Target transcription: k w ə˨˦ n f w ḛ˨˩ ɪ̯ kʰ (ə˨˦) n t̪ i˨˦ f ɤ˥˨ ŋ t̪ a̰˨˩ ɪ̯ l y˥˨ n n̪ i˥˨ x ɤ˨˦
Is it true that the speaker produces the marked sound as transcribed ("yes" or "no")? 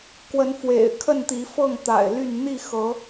no